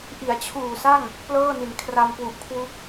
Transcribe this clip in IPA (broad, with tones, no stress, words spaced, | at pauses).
ʔi˩˦a̯t͡ɕʰuː˨˩sa˥˩ŋ | plɤː˥˩ni˩˦nkʰra˧mkwu˨˩ʔ kʰwu˦˥k̚